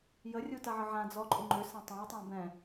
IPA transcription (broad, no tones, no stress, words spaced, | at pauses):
jərʲu taʕəʕãd͡zɔ ǃʼuŋ͡ǃʏsã tˤãjtˤã bɛ̃